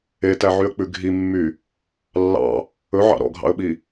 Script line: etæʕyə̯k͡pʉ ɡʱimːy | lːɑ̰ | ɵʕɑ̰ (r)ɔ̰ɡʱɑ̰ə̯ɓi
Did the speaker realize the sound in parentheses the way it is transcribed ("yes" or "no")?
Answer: no